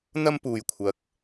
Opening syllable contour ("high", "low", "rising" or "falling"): high